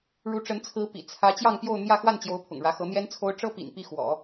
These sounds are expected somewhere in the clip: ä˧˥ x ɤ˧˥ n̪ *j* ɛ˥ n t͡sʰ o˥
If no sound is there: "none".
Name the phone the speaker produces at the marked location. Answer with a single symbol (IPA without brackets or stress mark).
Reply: j